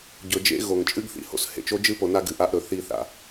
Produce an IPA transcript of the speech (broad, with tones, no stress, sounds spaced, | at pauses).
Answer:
ɟ ɵ˨ d͡ʒ ḛ˧ ɣ o˨ ŋ t͡ʃʼ ɨ˦ ɡ θ ḭ˨ h o̰˧ s h ḛ˨ t͡ʃ o˦ d͡ʒ ɨ˦ p o˧ n a˦ ɡ ɨ˨ ʔ a˦ ʔ ɾ ɵ˨ θ i˦˨ θ a̰˦